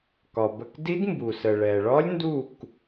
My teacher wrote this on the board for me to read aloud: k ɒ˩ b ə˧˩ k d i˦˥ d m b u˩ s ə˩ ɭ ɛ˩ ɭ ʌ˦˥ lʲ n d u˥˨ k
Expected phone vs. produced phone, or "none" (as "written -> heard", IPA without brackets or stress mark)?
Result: ʌ˦˥ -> ɒ˦˥